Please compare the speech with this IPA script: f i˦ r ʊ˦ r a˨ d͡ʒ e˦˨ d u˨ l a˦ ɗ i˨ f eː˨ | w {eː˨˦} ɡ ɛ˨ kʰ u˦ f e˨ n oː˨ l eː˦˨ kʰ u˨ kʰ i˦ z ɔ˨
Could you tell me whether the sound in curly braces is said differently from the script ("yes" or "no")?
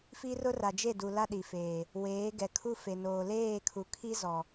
no